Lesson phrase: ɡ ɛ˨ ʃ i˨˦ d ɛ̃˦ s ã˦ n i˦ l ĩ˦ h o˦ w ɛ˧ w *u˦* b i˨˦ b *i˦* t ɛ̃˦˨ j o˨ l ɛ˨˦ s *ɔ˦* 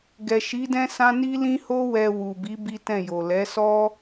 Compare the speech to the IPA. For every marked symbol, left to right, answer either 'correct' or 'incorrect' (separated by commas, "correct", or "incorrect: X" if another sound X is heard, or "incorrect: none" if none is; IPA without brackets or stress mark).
incorrect: u˨, correct, correct